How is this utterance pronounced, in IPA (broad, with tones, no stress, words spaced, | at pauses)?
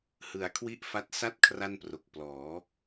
hɯ˨˩a̯kʰwi˥˩ʔfa˦˥t̚ sa˥˩t̚ kʰra˥˩npro˨˩k̚ plɔː˩˦